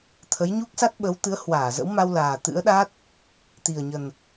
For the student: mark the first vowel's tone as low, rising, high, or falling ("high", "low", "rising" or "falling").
rising